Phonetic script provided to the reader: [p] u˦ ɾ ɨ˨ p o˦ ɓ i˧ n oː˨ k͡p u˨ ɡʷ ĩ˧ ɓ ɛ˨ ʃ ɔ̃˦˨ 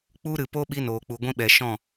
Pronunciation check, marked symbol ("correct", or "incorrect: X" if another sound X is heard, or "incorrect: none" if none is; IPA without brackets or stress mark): incorrect: k͡p